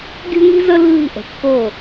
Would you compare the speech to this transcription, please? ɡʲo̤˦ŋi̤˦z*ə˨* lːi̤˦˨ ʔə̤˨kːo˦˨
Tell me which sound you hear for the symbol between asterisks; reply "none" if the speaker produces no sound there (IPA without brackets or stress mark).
ə˦